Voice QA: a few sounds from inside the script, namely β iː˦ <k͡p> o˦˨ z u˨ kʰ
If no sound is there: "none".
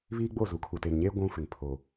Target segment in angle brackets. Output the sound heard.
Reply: ɡ͡b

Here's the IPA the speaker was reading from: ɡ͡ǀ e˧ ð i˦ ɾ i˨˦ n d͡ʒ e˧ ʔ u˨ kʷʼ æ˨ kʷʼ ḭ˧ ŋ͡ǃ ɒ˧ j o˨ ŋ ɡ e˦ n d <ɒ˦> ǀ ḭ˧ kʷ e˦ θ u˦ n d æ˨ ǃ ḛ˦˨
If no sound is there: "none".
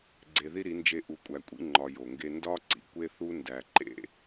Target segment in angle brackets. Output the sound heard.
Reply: ɒ˦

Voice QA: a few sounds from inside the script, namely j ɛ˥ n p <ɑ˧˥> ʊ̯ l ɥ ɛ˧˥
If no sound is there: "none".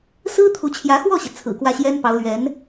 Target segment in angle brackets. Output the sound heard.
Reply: ɑ˧˥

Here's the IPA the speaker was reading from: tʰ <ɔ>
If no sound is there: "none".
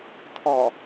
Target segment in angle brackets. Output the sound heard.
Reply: ɔ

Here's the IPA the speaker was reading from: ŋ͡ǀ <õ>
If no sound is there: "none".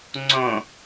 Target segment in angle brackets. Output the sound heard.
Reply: õ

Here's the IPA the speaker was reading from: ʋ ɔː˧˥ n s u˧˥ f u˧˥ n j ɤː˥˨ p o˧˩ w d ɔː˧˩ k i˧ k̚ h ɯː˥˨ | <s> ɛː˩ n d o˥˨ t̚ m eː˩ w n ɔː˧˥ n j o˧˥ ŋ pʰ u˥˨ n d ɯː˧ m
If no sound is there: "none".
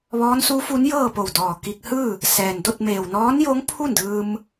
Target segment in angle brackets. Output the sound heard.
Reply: s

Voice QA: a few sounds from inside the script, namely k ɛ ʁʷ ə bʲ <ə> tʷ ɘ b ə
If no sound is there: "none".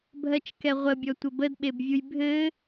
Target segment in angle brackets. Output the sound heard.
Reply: ɔ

